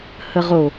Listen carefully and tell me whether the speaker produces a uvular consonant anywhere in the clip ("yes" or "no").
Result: yes